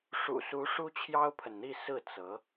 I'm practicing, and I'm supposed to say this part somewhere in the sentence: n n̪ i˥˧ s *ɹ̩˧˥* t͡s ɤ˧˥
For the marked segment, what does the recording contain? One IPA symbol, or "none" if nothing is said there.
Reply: ɹ̩˥˩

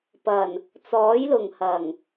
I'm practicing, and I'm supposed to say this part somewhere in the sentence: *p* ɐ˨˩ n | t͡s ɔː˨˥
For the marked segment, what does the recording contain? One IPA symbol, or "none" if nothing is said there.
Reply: p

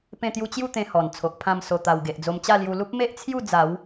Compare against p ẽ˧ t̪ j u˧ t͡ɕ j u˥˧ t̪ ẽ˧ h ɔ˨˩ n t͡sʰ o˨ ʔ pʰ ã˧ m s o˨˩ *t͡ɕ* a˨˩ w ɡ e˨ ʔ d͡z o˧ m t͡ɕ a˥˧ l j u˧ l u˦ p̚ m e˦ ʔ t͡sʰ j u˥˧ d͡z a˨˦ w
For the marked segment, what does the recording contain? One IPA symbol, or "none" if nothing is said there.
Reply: t̪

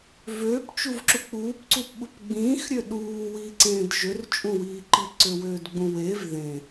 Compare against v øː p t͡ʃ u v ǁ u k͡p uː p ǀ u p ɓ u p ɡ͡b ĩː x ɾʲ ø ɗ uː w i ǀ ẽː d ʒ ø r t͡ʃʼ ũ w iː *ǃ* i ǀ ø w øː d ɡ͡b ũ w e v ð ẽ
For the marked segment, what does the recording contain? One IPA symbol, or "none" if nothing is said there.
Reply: ǃ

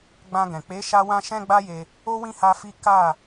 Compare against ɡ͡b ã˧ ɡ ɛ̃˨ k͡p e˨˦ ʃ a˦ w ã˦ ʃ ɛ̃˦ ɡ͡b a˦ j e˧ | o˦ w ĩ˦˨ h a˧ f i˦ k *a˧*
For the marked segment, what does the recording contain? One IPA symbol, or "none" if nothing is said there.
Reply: a˦˨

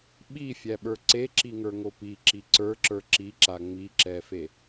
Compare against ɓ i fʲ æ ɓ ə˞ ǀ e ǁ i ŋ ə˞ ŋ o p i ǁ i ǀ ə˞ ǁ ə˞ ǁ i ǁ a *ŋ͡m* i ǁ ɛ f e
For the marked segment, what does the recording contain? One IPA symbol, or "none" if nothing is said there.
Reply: ŋ͡m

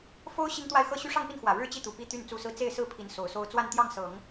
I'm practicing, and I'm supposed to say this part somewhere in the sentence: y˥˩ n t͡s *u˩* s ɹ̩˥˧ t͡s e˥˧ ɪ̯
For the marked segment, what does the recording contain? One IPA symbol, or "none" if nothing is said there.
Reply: u˥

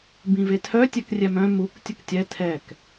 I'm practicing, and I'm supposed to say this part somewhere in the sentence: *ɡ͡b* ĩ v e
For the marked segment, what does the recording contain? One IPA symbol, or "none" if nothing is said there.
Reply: b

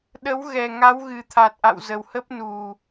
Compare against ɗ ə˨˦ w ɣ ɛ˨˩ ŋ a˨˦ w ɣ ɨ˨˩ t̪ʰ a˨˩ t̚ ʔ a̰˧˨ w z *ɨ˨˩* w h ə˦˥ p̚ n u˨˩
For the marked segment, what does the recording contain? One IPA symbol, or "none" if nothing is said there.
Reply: ə˨˩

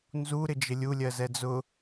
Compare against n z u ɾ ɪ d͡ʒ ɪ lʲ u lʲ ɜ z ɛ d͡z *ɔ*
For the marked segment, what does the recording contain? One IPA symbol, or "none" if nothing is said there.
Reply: ʊ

